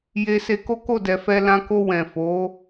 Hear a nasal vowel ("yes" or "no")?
yes